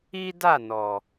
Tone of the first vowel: high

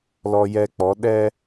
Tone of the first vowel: high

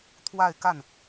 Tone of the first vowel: falling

